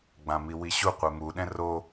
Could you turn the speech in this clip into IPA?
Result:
ɡ͡b ã m i w i ɕ u qʷ e m u ɗ ɛ̃ r o

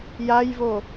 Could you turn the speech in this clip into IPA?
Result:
j a j v o

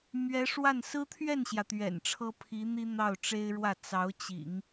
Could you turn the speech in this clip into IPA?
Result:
m ɥ ɛ˧˥ ʂ w a˥˩ n s ɹ̩˥ t̪ʰ ɥ ɛ˥˩ n ɕ j ä˩ t̪ ɥ ɛ̰˨˩ n ʈ͡ʂʰ ɤ˥ pʰ i˧˥ n̪ i˥ n̪ ɑ˥˩ ʊ̯ ʈ͡ʂ e˥ ɪ̯ ɻ w ä˥˩ t͡s ɑ˧˥ ʊ̯ t͡ɕ ḭ˨˩˦ ŋ

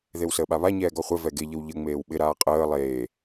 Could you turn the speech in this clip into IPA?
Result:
ð e w s əː ɓ a β a ɲ ɛː ɡ ɔ χʷ ɛ v ɛ ɡ e ʎ ə w ʎ ə ŋ͡m eː w ɓ ɪ ɾ aː qʼ əː lˠ eː

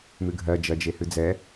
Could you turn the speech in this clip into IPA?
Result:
m ɨ ɡʱ ɜ d͡ʒ ɜ d͡ʒ e h ɨ d͡z ɛ

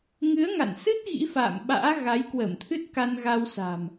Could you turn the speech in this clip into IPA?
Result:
ŋ ɨ˨˦ ə̯ ŋ a̰˧˨ n s ɨ˦˥ t̚ ɣ ḭ˧˥ f a̰ː˧˨ m ɓ a̰ː˧˥ ɣ a˨˦ j k w ə˧˩ m t̪ʰ ɨ˦˥ t̚ k a˧ n ɣ a˧ w s a̤˨˩ m

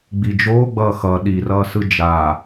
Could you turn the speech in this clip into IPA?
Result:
ɡ͡b i d͡ʒ oː ɡ͡b ʌː x ʌ ɗ i r ʌː s ɯ d͡ʒ aː

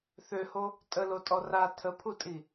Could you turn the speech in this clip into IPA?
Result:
θ ø h o | tʼ ə l o tʼ ɔ r a tʰ ə pʰ u tʼ i

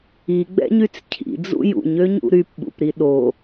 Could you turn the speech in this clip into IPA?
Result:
i ɡ͡b ɛ̰ ɲ y t͡s cʰ ḭ d͡z ṵ j ṵ ɲ ø ɲ ṵ ɾ y p ɓ ṵ p ɾ i ɗ o

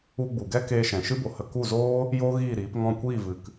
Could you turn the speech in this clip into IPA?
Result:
u˧ ɡ͡b u˨ ɡ ɛ˦ k eː˧ ʃ ɛ̃˨ ʃ ɨ˦ b o˨ h ə˧ k u˦˨ z oː˦ | j oː˦ ɣ iː˦˨ ɾ iː˨˦ p ŋ ɔ̃˦˨ kʷ iː˦˨ v ɨ˨ k

